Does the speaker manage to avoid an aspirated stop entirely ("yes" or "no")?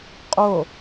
yes